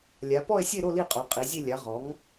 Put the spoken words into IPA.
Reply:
lʲ a˩˧ p ɔ˦˨ e̯ sʲ e˦˨ ɾ o˦˨ l i˦˨ qʼ o˩˧ qʼ i˩˧ zʲ e˦˨ lʲ a˩˥ ʁ ɔ˩˥ ŋ

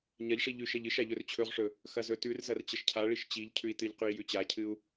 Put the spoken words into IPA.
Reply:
ɲ ɐ ʎ ʂ i ʎ ʉ ʃ ɐ ʎ ɨ ʃ a ʎ ɵ r t͡ɕʰ ɵ ʁ ʂ ɵ | x ɐ z ɵ t ʉ r z ɐ r t͡ɕ ɐ ʃ cʰ a ɭ i ʃ t͡ɕ i ʎ cʰ ʉ i̯ t ɨ ʎ q ʉ i̯ j ʉ t͡ɕ a cʰ ɨ u̯

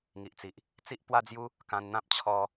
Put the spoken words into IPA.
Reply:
ŋ i˨ ʔ t͡s i˨ ʔ | t͡s i˦ ʔ p w a˦ d͡z j u˦ | k ã˧ n n̪ ã˦ p̚ t͡ɕʰ ɔ˧

